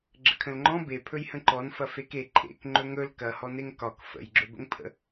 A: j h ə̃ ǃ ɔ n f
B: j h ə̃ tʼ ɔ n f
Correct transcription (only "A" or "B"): A